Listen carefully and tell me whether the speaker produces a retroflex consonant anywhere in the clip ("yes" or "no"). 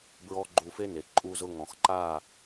no